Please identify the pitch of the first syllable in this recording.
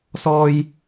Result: high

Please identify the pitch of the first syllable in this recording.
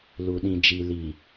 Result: low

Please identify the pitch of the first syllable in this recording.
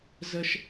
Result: high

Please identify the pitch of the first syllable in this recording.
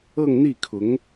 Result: falling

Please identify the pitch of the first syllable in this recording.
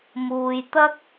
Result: low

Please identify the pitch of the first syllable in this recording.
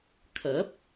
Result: rising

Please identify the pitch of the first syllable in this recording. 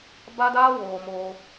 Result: high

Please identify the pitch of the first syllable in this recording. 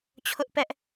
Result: high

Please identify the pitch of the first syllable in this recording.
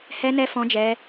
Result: high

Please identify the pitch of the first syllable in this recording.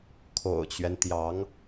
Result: low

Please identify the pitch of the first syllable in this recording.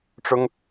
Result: high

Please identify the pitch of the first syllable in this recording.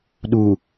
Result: low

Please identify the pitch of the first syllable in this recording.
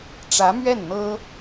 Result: rising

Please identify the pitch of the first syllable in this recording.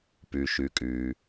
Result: low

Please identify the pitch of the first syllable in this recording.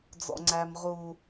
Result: high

